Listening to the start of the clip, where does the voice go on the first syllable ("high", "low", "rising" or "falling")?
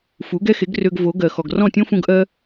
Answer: rising